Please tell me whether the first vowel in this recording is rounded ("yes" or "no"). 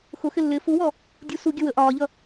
yes